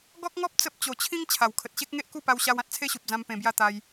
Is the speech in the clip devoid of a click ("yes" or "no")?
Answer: yes